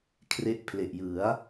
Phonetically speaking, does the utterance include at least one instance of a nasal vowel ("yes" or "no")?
no